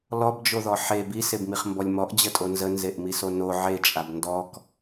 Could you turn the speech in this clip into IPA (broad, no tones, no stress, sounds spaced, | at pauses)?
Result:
l ɔ b d͡ʒ o ð ɔ ħ e b i s e b m i χ m b ɔ lʲ m ɔ ʔ d͡ʑ ə tʼ o n z ə n z e ʔ m i s o n o ʕ e t͡ʃʼ a b n d ɔ k